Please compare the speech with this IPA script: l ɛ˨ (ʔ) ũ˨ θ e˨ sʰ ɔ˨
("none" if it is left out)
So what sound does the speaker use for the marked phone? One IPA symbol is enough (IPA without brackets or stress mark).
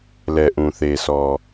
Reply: ʔ